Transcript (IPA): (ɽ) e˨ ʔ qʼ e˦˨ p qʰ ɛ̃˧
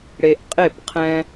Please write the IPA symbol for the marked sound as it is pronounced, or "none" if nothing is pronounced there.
ɽ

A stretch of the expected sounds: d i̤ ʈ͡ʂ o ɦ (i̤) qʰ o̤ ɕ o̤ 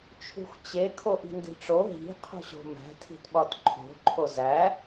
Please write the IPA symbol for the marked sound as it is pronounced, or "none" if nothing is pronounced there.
i̤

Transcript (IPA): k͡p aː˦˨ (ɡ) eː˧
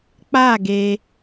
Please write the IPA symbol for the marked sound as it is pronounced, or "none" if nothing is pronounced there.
ɡ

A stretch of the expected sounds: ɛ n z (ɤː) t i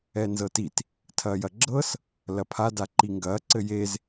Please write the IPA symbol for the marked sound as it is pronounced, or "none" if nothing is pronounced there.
ɤ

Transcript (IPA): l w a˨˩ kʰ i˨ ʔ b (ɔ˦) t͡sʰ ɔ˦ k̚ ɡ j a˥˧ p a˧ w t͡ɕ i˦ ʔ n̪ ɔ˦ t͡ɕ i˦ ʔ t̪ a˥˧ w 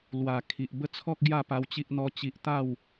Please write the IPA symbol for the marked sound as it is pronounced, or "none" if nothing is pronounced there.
ə˦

